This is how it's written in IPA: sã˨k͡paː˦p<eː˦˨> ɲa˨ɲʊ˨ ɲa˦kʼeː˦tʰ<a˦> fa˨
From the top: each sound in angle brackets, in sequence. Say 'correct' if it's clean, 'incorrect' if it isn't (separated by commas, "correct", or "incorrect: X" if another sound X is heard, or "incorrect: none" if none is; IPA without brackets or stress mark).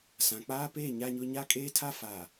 correct, correct